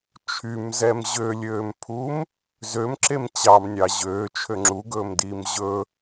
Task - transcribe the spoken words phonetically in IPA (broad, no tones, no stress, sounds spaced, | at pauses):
t͡ʃʰ y m z ɛ m ʑ ø lʲ øː m pʰ u m | z ø m ǁ e m t͡ɕ ɑ m nʲ ɑ ʑ øː t͡ʃʰ ø ŋ͡ǁ u ɡ ɵː m d iː m ʑ ɵ